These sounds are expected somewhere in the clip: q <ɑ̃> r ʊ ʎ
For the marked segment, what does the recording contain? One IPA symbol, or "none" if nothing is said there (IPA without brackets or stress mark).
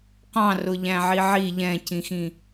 ɑ̃